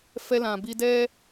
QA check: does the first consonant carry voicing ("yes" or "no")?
no